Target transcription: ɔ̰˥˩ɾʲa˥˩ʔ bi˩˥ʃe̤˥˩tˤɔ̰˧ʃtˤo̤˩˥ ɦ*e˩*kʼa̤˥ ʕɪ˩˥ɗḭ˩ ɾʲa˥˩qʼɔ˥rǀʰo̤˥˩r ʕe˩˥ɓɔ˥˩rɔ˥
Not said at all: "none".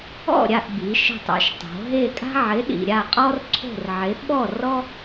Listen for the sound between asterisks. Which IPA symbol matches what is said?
e˥˩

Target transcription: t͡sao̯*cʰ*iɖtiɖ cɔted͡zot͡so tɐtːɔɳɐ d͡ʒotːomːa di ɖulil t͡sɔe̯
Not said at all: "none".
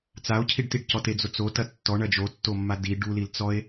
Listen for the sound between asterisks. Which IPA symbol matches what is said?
cʰ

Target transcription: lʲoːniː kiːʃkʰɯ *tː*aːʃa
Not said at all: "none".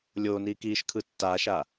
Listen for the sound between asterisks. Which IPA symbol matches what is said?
tː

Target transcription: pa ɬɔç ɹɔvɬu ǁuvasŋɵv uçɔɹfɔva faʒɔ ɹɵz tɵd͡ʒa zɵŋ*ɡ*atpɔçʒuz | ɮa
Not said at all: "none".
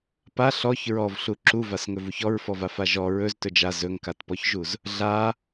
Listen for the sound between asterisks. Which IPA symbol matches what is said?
k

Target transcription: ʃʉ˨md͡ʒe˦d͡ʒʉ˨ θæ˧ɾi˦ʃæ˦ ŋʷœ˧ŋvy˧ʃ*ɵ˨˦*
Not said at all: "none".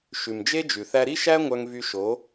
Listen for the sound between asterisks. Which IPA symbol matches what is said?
o˨˦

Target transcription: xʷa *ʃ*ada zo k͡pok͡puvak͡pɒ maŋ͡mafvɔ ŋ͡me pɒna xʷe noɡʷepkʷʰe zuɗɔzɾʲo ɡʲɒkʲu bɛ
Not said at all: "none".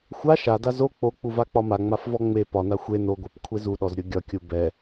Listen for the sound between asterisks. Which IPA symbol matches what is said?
ʃ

